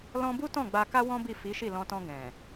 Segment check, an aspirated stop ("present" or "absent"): absent